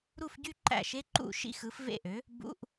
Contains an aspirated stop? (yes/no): no